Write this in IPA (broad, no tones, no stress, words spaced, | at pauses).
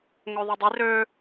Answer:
ŋøðˤødˤi rø